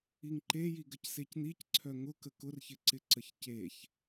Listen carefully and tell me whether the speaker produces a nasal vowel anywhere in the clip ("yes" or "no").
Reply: no